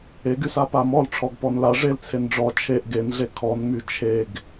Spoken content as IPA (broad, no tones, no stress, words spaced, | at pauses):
eɡysa pamɔlʈ͡ʂʰɔɡ pɔnla ʐel t͡sʰenɖ͡ʐɔ t͡ʃʰeʔ ɡenɮe kʰɔnmy t͡ʃʰeɡ